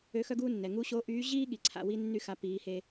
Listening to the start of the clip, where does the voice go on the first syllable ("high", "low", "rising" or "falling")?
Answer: rising